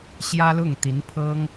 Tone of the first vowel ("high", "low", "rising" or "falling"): high